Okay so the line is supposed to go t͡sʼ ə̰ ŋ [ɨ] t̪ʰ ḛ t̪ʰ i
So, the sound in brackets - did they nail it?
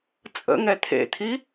no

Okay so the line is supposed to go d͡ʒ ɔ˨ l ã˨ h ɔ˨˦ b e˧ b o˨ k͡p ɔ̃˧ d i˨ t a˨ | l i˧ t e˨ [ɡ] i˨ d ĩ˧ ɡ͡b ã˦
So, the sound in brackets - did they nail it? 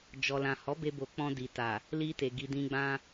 yes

